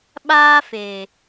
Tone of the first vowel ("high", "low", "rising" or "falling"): high